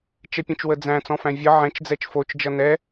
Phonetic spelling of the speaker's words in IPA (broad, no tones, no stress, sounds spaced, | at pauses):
t͡ʃ ɛ pʲ ə̃ t͡ʃ w ə d͡z æ̃ t͡s ɔ̃ f æ̃ vʲ ʌ ʕ ɛ̃ t͡ʃ d͡z ɛ t͡ʃ f o t͡ʃ d͡ʒ ʌ n ɛ